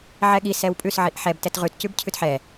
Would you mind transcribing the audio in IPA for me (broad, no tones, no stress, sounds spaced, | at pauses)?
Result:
ʕ ɛ ɠ i s ɛ w pʼ ʉ s ʕ i ʔ ħ ɛ b t ɛ t ʁ ʉ t c ʉ b cʰ ʉ t ħ ɛ